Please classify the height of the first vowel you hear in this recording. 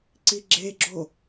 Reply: high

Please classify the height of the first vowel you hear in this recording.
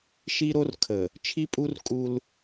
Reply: high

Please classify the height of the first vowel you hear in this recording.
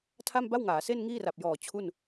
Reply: low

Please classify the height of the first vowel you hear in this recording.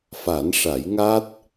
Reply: low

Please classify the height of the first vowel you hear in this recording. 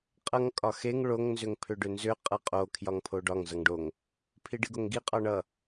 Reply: mid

